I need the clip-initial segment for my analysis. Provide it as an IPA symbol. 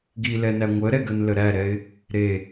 ɡ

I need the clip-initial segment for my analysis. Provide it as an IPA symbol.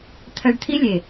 t̪ʰ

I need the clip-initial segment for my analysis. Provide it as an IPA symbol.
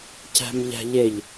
c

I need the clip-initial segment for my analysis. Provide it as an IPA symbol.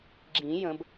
ɡ͡ǁ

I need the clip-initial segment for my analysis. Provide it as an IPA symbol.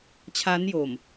t͡ɕʰ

